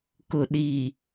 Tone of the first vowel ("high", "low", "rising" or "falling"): low